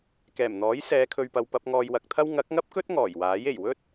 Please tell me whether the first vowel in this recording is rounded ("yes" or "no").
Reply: no